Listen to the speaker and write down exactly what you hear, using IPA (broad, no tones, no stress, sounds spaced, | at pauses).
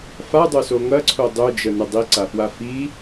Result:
f a dˤ ø s o ŋ ɐ ǀʰ o dˤ ø d͡ʒ ə n ə dˤ i ǀ a f w a f i